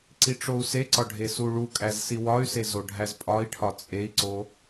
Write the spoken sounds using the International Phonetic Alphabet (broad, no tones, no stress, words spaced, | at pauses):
ǀiʈ͡ʂou̯seǀɒ ɖʱesuɭukʼæz siwɒy̯se zoɖʱæzpʼɒi̯ʈʰɒ t͡sʼei̯ǀo